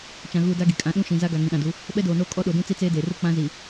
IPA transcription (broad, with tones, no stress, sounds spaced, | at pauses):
t͡ʃ ã˨ ɣ uː˨ d a˦ ɡ i˨ kʼ ã˨˦ ɗ ũ˦ ʃ ĩ˨ z a˦ ɡ a˨ ŋ ĩ˨ ɗ ã˨ d u˨˦ | ɓ ɛ˦ d oː˨ n oː˦ kʼ ɔ˦ ɗ o˨ d ũ˦ t͡s i˦ t͡s eː˦ d eː˨ r u˦˨ k͡p ã˦ z i˨